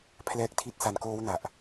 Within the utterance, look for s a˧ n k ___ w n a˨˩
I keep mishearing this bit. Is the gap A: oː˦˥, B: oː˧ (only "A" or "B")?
A